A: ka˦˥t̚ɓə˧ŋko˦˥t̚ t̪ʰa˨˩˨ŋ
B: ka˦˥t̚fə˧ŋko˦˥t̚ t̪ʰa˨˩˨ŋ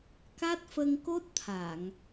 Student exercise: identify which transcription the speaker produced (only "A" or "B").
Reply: B